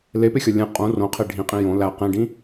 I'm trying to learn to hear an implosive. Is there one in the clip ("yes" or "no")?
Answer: no